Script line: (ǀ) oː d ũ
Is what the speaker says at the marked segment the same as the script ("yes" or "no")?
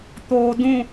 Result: no